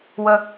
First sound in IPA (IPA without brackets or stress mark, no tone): w